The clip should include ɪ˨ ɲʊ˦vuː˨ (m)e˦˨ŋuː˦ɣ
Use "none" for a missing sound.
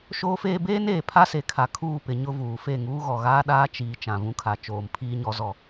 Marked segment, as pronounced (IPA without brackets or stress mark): f